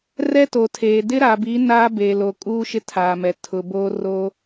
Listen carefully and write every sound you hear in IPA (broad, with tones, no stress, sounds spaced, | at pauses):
r ɛ˦ t o˨ tʰ eː˨ d ɪ˦ ɾ a˨ b i˨˦ n aː˦ b e˨ l o˨ kʼ uː˦ ʃ ɪ˦ tʰ aː˨ m ɛ˨ tʰ ʊ˨ b o˦ r o˦